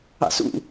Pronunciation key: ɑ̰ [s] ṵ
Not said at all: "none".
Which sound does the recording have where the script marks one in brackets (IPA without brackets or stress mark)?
s